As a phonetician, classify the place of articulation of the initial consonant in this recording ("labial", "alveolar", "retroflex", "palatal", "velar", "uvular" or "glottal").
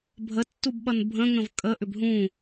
labial